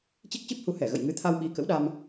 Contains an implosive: yes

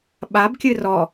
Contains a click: no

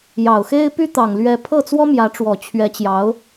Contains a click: no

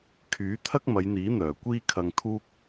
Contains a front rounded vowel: yes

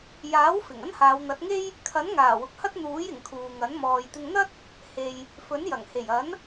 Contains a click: no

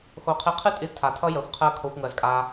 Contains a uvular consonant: yes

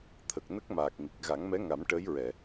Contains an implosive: no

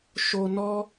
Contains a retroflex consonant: no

